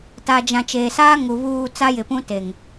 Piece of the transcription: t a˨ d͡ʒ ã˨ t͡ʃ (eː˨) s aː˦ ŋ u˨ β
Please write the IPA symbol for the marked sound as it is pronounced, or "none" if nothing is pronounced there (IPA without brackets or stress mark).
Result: eː˨